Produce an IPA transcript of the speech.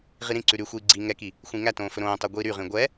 ʁ i ɾ ĩ ǀ ʉ ɾ y xʷ iː ɡ͡ǀ i ŋ ɛ k i | xʷ ĩ ŋ æ t õː f ɵ ɾ õː tˤ ø ɡʷ iː ɾ y ʁ ĩ ɡʷ ɛ

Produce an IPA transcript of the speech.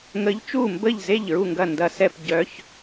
ŋ ə˨˦ ʎ t͡ʃ u˥˩ m b ə˥˩ ʎ z e˥˩ ʎ ɹ u˥˩ ŋ ɡ ɐ˥˩ n d ɐ˨˦ s ɛ˥˩ p ɟ œ˨˦ ç

